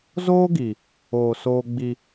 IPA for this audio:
z oː˦ ɡ i˨ | oː˨ s oː˦ ɡ͡b i˦

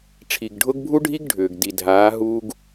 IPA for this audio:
ʈ͡ʂʰ i˨ ɡ ɖʱ ʊ˦ ɡ bʱ u˦ ɖʱ i˦ ɡ ɖʱ ʏː˨ ɡ d i˨ dʱ aː˨˦ ɦ uː˦ ɡ

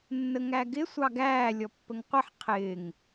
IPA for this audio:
nː ə ŋ æ ɡ ɪ sʷ ɑ ɡ æː lʲ ɔ pː ə ŋ qʷ ə ħ qʰ ɪː ŋ

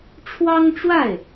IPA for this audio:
ʈ͡ʂʰ w ɑ˥ ŋ ʈ͡ʂ w a˥˩ ɪ̯

